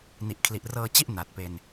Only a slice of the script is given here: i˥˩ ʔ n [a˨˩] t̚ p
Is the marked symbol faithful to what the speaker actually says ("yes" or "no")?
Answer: yes